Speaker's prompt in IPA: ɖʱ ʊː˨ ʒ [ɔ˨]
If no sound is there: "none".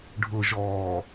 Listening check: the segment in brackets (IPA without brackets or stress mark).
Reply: ɔː˨